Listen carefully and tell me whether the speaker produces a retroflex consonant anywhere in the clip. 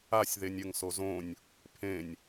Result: no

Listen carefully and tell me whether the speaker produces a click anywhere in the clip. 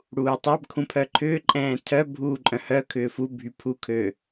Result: yes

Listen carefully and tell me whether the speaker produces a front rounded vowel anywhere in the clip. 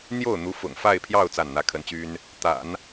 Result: yes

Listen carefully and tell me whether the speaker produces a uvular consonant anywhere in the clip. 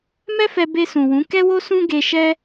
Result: no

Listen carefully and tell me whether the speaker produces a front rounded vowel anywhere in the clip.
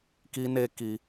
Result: no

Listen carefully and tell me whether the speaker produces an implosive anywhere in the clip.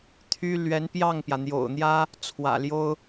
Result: no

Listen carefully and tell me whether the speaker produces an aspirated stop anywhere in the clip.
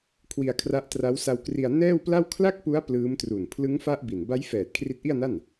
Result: yes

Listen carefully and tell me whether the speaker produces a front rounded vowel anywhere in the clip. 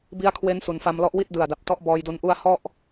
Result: no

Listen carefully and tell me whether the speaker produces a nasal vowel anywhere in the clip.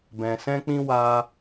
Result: yes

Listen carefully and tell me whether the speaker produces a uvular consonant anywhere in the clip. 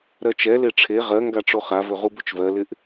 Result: yes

